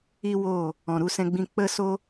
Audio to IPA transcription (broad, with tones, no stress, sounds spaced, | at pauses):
i˦ w oː˦˨ | ɔ̃˨ ɾ u˧ s ɛ̃˧ ɡ͡b ĩ˧ k͡p ə˦ s o˦